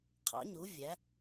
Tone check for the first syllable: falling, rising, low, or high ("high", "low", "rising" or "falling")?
rising